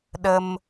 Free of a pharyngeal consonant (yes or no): yes